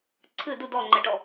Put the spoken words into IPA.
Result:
ǀʰɨ du dɔŋ͡ǃɛʈɔ

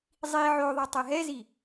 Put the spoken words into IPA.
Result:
zˤi ʕoðˤʌ tˤɛɦɛzi

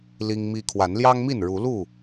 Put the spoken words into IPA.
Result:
li˦ŋmi˦ kʰwa˨˦nljɑ˦ŋmi˥˨n ɻu˨˦lu˥˨

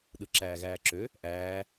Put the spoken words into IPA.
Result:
ɗɯǁæːɣæːǁø | ʔæː

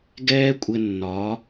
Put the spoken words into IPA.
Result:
ɡɛː˦kʷʼɘ˧ nːɒ˨˦

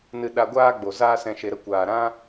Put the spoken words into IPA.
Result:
nɨ˧ ɗa˧ɡʷaː˦ɡ͡bo˨ zaː˦sɛ̃˧ʃe˧ɾə˧ kʷaː˨ɾã˦

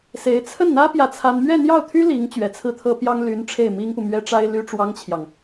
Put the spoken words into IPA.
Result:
se˧˥ɪ̯ t͡sʰə˥˩nn̪ä˥ pjä˥˩t͡sʰa˥n mɥɛ˥˧n̪jɑ˥˩ʊ̯t̪ʰy˥ li˧˥ŋ t͡ɕɥɛ˨˩t͡sʰɹ̩˥˩t̪ʰɤ˥pjɑ˥ŋ ly˧˥n ʈ͡ʂʰe˥˩ɪ̯mi˥ŋpu˨mɥɛ˥ ʈ͡ʂa˥ɪ̯ly˥ʈ͡ʂwɑ˥ŋt͡ɕʰjɑ˨ŋ

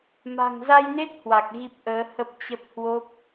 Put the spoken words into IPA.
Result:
ma̤˨˩ŋza˧jne˦˥t̚ hwa˨˩k̚ ɣi˦˥p̚ʔəː˨˦ hə˦˥p̚ t͡ɕə˦˥p̚ hwo˦˥p̚

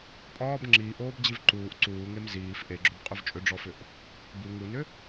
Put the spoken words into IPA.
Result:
pʼɒːb ŋ͡ǁiːʔoːbd͡ʑiv ǃuːʔ ǀuːŋem ziːf ʔeɡ͡ǁobqʼʏv t͡ʃʼʏɖ͡ʐɔfʏʔ | bu ŋunʏ

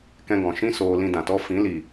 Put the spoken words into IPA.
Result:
kɛ̃˧ɡɔ̃˨ʃĩ˦ soː˧lĩ˧dã˨tɔ˦ fĩ˨˦li˨

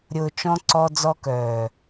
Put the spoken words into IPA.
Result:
ɾʲʊː˨t͡ʃɔ̃˧ ǀɔ˧ d͡zɔ˧kœː˨

